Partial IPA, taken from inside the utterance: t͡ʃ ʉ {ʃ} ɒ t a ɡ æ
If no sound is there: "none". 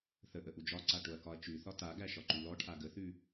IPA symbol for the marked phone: θ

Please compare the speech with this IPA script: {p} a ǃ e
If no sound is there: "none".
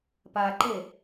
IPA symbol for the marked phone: p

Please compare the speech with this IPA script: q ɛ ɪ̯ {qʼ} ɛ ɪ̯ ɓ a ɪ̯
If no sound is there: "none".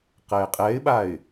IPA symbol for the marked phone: qʼ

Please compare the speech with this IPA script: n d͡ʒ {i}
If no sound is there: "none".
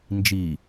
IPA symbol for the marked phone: i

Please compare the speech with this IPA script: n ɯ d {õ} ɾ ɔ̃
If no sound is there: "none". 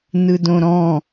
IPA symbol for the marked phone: õ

